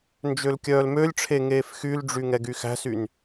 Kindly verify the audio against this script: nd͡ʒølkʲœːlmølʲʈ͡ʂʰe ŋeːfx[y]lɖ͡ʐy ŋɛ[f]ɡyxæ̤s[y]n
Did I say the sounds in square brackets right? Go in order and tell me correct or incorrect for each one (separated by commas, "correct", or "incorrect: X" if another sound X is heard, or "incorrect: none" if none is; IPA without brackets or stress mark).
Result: correct, incorrect: none, correct